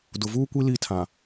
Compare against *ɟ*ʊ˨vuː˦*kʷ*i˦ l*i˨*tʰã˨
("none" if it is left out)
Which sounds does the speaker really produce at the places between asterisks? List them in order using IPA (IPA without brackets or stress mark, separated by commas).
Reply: d, kʷ, i˦˨